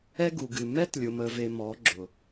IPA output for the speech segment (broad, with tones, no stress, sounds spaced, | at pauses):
ɛ˦ ɡ u˨ ɡ ɨ˨ m ɛ˦ t lʲ ʊ˨ m ə˨ v e˨ m ɔ˨˦ ɡ͡ǁ ʊ˨